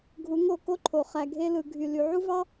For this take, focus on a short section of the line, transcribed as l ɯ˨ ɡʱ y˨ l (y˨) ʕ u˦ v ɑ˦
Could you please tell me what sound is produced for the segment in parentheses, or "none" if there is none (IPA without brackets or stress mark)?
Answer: y˨